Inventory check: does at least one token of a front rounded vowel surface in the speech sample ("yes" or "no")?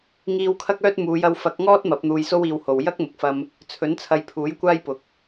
yes